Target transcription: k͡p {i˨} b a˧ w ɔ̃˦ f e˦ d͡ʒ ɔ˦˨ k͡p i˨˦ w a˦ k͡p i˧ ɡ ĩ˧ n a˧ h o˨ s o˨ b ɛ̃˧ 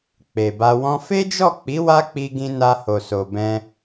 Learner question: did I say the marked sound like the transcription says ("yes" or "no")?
no